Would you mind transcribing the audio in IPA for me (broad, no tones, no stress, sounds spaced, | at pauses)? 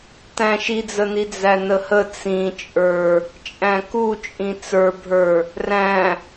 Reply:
t æ̃ ʃ i d͡z ə n i d͡z æ n ə h ə t͡s ĩ t͡ʃʼ ə˞ | t͡ʃʼ æ̃ k u t͡ʃʼ ĩ t͡s ə˞ bʱ ə˞ | r æ̃